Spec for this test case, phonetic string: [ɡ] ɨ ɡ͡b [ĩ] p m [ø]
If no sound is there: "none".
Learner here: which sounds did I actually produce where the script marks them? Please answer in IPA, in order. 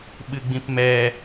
ɓ, ĩ, ɛ

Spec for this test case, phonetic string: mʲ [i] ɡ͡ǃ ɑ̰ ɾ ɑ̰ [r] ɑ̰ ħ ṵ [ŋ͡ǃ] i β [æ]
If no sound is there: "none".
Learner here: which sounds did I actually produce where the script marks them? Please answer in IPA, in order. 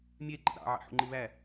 e, ʕ, ŋ͡ǃ, æ

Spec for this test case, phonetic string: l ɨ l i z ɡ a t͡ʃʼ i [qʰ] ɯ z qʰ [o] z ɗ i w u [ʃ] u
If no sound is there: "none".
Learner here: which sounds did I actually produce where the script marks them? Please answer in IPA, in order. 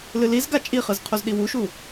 χ, o, ʃ

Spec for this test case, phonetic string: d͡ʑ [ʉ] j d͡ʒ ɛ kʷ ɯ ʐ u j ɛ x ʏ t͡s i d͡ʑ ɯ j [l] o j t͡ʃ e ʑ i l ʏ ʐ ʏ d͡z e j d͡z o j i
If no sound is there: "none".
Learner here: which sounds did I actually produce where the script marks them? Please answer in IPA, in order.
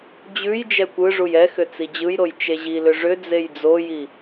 ʉ, ɾ

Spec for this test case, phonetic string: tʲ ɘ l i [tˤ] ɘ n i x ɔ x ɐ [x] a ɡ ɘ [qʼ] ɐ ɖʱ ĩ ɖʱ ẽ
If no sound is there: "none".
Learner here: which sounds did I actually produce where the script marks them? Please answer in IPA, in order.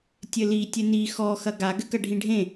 tʲ, ɡ, k

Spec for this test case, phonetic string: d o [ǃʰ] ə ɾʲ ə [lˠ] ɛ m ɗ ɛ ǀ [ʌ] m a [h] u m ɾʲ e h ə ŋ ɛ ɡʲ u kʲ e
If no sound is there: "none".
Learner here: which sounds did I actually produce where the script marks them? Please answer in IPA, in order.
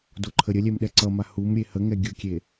ǃʰ, lʲ, ʌ, h

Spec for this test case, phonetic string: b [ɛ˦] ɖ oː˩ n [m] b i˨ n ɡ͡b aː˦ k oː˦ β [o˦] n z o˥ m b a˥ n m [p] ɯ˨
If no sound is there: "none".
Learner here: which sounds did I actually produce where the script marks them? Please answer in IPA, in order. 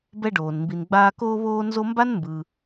ɛ˦, m, oː˦, b

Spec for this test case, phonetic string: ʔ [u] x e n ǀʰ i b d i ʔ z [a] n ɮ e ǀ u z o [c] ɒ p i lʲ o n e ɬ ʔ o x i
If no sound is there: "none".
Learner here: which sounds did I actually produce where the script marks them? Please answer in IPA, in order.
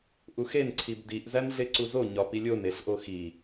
u, æ, ɲ

